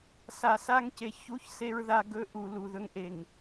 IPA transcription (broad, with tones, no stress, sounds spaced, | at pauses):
s a˨ s a˦ ŋ c e˨ ç u˦˨ ç s e˦ ɹ ð a˦ ɡ ɵ˦ ʔ u˨ l u˨ ð ɵ˦ ŋ ʔ e˨ ŋ